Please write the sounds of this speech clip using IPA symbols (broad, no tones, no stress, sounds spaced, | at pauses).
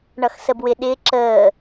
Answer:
ɳ ʌ x s ə b w ɪ ɗ ɪː ǁ əː